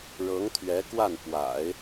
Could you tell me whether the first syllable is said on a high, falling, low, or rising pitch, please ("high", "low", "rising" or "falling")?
rising